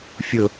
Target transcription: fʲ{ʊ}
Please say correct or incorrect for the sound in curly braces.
correct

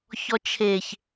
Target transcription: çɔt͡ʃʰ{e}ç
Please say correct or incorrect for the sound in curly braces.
correct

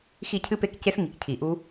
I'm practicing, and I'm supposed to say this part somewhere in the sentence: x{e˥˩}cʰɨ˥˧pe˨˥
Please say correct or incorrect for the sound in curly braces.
incorrect: i˥˩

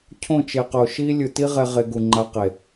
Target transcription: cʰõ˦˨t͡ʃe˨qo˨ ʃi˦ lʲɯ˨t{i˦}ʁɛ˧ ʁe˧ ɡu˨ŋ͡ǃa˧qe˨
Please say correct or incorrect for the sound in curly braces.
correct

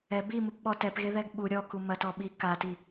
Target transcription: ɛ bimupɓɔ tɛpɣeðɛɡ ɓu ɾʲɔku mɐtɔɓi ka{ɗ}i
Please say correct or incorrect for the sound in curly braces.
incorrect: t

